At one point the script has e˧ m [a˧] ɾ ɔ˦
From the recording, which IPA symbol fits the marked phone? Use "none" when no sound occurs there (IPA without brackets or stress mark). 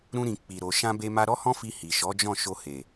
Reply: a˧